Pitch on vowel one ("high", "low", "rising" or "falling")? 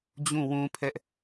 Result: falling